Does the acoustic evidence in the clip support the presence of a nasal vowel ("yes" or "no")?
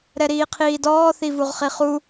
no